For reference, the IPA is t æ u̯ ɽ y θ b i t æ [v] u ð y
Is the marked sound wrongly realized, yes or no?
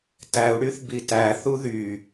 yes